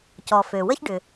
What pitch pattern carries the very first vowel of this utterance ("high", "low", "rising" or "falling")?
low